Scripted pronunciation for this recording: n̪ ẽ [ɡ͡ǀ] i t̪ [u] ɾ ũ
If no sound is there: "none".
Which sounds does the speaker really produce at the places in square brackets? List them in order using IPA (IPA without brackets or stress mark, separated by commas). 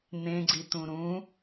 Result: ɡ͡ǀ, ũ